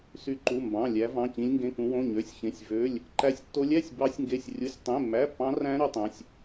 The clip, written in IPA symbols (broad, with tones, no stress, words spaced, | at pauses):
sy˦˥ǃu˧˥˧ mbɑ̃˧˥˧lʲæ˦˥ vɑ̃˧˥˧cĩ˦˥lʲŋɡẽ˧˥˧kũ˦˥ wõ˧˥˧ɲø˧˥˧sʲçẽ˧˥˧sʲ vø˧˥˧lʲ | ǃæ˦˥sʲtːo˦˥lʲæ˧˥˧sʲ bɑ˦˥sʲŋɡe˧˥˧sʲrʲu˧˥˧sʲ tˤẽ˧˥˧mːæ˧˥˧pːɑ̃˦˥ræ̃˦˥ ɾy˦˥tˤæ̃˧˥˧sʲ